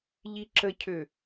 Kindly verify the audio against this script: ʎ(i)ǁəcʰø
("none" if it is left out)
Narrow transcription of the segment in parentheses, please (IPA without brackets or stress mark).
i